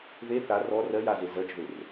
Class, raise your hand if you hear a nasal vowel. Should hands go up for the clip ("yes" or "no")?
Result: no